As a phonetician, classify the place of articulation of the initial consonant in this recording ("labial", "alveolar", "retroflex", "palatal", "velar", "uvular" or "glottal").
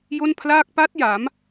palatal